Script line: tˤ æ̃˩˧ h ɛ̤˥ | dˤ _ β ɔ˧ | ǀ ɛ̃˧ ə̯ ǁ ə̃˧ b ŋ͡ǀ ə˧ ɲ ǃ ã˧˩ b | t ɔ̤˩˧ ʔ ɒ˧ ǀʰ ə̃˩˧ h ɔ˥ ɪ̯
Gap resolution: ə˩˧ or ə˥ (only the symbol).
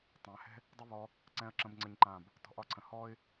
ə˥